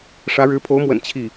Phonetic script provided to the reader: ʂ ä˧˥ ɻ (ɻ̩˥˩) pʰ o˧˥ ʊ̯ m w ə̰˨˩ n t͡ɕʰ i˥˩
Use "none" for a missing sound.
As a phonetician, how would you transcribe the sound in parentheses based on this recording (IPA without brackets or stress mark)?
ɻ̩˧˥